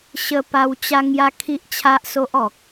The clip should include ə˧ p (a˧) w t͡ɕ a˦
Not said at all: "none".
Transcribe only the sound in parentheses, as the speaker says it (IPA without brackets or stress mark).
a˧